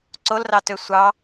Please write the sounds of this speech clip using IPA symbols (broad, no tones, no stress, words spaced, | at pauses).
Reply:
ǀolrɑtø sʷɑ